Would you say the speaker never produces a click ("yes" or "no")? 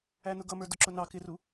no